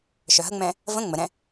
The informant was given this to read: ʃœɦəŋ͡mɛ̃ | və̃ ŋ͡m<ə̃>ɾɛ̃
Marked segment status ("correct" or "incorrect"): incorrect